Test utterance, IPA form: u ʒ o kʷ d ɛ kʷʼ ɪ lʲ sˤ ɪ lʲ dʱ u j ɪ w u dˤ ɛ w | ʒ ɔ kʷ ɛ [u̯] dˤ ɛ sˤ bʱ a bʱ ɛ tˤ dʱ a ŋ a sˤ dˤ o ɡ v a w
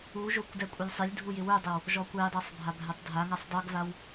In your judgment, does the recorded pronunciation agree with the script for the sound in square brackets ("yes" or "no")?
no